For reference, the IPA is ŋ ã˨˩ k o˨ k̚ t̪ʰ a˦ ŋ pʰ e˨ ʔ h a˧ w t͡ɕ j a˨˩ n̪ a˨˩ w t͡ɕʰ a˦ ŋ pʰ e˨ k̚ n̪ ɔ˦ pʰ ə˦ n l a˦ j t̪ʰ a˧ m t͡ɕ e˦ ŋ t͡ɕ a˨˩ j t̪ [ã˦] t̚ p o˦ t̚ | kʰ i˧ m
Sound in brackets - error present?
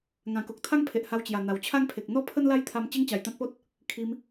no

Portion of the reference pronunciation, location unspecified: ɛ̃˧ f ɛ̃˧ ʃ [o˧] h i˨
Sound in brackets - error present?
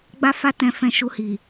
yes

